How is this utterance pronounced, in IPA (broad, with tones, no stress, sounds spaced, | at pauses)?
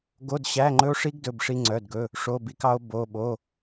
ɡ o˧˥˧ d ɕ æ˧˥˧ ŋ͡ǃ ɵ˦˥ o̯ ʂ i˦˥ ɡ d ɵ˧˥˧ b ʂ i˦˥ ŋ͡ǀ œ˧˥˧ d ɡ ɵ˧˥˧ | ʂ o˧˥˧ b i˦˥ k ɑ˦˥ o̯ b o˧˥˧ ɓ o˧˥˧